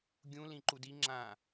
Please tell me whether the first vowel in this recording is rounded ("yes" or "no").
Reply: yes